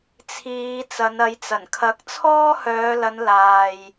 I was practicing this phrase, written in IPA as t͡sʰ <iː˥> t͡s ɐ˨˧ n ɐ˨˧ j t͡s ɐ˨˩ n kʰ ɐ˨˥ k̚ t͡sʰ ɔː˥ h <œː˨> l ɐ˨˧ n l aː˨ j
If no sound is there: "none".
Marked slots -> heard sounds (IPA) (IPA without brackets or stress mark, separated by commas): iː˨˧, œː˨˧